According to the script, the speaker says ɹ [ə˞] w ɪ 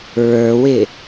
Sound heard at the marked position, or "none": ə˞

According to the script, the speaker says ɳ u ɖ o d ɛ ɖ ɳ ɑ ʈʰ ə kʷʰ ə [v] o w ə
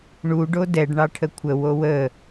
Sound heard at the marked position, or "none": w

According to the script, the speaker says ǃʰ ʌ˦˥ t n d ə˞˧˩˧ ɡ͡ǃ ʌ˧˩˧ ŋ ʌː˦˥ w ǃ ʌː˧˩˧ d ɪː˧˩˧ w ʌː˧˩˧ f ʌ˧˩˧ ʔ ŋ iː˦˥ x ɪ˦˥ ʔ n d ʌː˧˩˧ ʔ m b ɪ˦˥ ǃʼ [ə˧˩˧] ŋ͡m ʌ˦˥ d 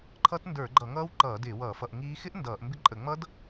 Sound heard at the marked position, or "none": ə˧˩˧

